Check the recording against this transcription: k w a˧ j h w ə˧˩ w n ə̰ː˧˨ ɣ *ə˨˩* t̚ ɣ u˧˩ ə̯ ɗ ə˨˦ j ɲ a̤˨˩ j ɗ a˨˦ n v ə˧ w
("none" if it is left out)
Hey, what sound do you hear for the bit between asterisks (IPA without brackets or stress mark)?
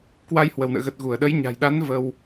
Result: ə˨˩